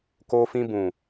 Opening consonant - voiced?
no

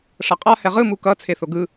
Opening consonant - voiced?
no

